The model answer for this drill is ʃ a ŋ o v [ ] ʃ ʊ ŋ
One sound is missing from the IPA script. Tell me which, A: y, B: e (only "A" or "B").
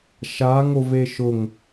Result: B